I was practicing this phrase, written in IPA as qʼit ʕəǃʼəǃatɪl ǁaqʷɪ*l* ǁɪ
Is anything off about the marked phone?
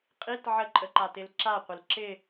no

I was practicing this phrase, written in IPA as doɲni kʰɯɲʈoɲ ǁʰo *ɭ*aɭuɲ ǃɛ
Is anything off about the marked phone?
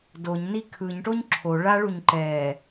no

